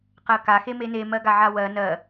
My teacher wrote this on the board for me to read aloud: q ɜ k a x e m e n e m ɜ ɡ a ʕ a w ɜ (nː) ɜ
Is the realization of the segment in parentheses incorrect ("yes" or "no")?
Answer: yes